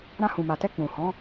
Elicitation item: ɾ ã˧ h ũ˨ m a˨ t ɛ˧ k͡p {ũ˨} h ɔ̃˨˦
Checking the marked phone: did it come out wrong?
no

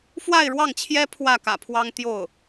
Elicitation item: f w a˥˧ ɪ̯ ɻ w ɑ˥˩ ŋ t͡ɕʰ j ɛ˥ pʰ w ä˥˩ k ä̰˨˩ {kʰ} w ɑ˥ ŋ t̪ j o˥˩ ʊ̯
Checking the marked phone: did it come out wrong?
yes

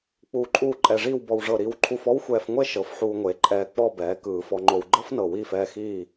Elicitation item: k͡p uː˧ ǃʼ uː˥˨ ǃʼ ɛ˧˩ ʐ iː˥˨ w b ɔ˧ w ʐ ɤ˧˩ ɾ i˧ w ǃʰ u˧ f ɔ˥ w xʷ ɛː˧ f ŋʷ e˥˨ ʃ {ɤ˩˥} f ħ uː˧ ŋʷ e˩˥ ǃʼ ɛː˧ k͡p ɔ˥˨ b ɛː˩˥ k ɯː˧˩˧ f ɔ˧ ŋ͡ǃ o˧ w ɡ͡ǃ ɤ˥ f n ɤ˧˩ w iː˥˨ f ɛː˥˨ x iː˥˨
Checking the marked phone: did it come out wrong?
no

